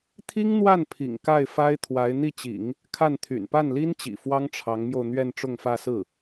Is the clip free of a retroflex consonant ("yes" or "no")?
no